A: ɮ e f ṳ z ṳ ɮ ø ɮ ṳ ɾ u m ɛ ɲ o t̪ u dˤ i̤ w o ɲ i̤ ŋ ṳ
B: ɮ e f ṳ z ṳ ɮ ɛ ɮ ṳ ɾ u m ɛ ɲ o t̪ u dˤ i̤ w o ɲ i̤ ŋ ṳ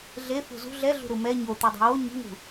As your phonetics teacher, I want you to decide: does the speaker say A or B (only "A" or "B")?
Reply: B